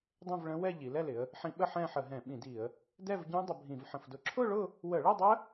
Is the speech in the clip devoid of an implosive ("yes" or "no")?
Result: no